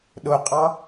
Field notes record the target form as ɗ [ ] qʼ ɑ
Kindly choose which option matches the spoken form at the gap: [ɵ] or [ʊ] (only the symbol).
ʊ